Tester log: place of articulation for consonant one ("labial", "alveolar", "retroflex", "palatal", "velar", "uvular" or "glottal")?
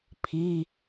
labial